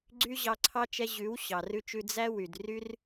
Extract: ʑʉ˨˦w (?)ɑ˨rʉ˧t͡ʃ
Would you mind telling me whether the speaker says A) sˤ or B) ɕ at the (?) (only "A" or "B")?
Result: B